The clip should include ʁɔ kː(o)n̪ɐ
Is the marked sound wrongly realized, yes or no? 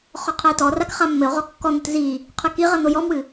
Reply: yes